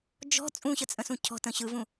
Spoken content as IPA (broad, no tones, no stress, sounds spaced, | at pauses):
d͡ʒ ɔ̤ t͡sʼ ũ ɕ ə t͡sʼ ə̃ s ũ cʰ ɔ̤ t ə̃ ɕ ɯ v ũ